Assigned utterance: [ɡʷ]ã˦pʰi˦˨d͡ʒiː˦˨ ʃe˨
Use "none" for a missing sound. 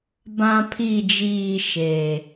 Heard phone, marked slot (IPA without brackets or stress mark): b